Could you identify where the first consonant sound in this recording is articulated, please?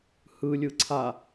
glottal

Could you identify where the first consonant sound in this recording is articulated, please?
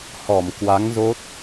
glottal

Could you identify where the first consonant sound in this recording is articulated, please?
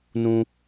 alveolar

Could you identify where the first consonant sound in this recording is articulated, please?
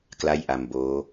velar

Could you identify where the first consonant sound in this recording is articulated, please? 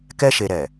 velar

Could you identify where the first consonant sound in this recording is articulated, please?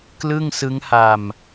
velar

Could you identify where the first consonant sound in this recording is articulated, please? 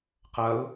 uvular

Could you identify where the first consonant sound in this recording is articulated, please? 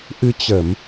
glottal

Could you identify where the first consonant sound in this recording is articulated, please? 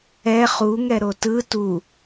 uvular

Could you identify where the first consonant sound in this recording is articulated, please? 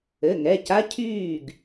velar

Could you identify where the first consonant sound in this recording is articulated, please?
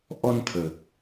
glottal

